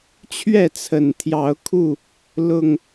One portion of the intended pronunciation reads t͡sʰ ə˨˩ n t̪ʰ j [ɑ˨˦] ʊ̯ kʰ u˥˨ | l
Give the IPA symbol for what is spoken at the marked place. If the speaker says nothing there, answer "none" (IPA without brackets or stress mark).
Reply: ɑ˨˦